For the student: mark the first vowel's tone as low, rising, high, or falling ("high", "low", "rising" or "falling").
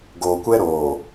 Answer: low